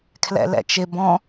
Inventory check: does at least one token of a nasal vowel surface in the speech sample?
yes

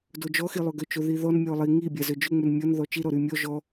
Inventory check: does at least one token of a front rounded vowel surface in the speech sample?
yes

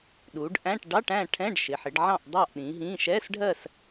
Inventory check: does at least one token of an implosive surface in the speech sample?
yes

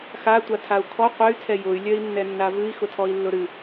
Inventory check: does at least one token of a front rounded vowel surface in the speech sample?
yes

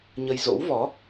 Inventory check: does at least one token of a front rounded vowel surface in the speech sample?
no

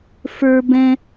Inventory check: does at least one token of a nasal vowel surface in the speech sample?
yes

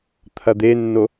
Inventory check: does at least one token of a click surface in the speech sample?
no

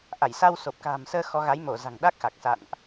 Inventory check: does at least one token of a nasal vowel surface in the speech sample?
no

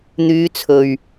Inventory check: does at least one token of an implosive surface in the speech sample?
no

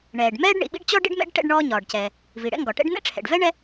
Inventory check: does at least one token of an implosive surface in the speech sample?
yes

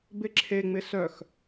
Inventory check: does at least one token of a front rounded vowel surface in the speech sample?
yes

